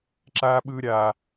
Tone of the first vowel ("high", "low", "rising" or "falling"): high